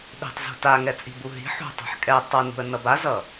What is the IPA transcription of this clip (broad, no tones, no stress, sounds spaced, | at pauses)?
ɗ e̤ tˤ z ṳ t a ŋ ɛ t͡sʼ i̤ b u ɦ i̤ ħ ṳ tˤ a̤ ħ kʼ ɛ tˤ ʌ n ṳ ə̯ n ʌ b a z ʌ